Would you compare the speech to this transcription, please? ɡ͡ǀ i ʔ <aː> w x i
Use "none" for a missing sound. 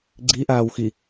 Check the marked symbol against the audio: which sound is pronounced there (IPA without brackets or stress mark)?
aː